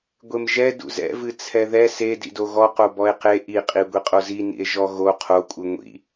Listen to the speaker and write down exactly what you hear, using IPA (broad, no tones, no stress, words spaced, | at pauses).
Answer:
ɡʷemʒɛ dṵzɛ̰vɨ t͡sʰɛðɛ se dḭdoɣɔqo bɔe̯qe ʔiqʼi ɡʷiqʼozinḭe̯ ʒɔɣo qʰokʷʼɨ ŋʷḭ